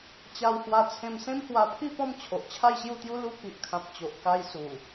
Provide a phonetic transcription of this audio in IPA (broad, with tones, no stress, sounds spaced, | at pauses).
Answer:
t͡ɕ a˧ w h w a˧ t͡sʰ ẽ˧ m s ẽ˦ m h w a˧ pʰ i˥˧ p ɔ̃˥˧ m t͡ɕʰ o˨ ʔ t͡ɕʰ a˥˧ j ɕ j u˥˧ t̪ j u˦ l u˧ k i˨ ʔ kʰ ã˨ p̚ t͡ɕ o˨ ʔ k a˧ j s u˨˩